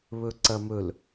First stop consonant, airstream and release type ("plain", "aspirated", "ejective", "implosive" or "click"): click